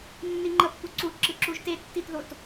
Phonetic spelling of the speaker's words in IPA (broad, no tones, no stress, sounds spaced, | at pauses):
nː i ŋ͡ǃ ʌ pː u ǀ u ǁ ɯ ǁ u ʒ t e tː i t ð o t